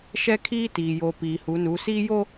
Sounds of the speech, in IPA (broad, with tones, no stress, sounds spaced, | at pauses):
ʃ ɛ˦ kʰ iː˦ t iː˨ j o˨ p iː˨ h u˨˦ n u˨˦ s iː˦ j o˦